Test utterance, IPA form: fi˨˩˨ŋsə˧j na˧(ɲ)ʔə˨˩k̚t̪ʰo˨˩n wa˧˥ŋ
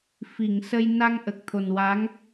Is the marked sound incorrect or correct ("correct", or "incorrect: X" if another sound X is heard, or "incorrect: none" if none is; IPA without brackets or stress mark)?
incorrect: ŋ